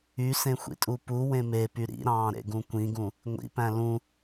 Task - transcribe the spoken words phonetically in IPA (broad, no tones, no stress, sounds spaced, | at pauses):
y s ẽ xʷ ḭ tʼ u p u w ẽ m e p y ɾ ḭ ɾ ɑ̃ː ɾ ḛ ɡ ũ kʷ ĩ ɡ ũ | ŋʷ ḭ p æ̃ l ũ